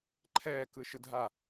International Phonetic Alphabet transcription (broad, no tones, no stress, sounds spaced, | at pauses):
ǃʰ ɛː k ɯ ʃ ɯ dʱ a